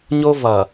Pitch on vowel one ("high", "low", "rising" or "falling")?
high